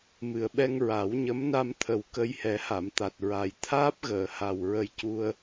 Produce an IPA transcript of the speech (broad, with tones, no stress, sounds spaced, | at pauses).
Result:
m ɨ˨˩ ə̯ ɓ ɛ˧ ŋ ɹ a˨˩˦ w ɲ ə˧˥ m n a˧ m t̪ʰ ə˨˩ w k ə˧ j h ɛ˨˩˦ h a˨˩˨ m t̪ a˨˩ t̚ ɹ a˨˩ j t̪ʰ aː˦˥ p̚ ɣ əː˨˩˨ h a˨˩ w ɹ ə˧ j c u˧ ə̯